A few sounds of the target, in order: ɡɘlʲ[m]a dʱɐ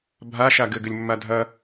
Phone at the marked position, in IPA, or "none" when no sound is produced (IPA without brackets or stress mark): mː